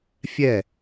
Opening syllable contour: falling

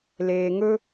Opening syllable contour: low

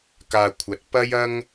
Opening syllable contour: low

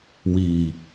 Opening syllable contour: low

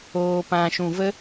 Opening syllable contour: low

